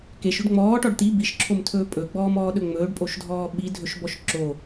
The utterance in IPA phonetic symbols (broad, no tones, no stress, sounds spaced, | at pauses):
k e ʃ ɵ ɖ ŋ͡m ɔː ʈ ɔ ɖ t̪ i b i ʃ ǁʰ o m tʰ ɵː pʼ ɵ ɡ͡b ɔː m ɔː ɗ ɵ ŋ͡m ɵː ɖ pʼ o ʃ dʱ ɔː ɓ i dʱ ɵ ʃ b ɔ ʃ ǁ o